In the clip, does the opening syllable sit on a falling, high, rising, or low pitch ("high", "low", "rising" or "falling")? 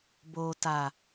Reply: low